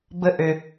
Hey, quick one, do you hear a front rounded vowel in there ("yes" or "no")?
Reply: yes